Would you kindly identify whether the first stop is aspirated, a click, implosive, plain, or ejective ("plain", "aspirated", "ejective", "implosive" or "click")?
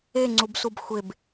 click